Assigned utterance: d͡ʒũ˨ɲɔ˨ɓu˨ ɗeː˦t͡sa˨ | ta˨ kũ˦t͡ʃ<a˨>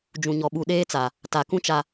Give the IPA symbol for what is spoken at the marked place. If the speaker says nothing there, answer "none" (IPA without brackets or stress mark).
a˨